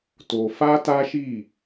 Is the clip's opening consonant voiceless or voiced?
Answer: voiceless